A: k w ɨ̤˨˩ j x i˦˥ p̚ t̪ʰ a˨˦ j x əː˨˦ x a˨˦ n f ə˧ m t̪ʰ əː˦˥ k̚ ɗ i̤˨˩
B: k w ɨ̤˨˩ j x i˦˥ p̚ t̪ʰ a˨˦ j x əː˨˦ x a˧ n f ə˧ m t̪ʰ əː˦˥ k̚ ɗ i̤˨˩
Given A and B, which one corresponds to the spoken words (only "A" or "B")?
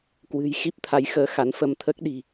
A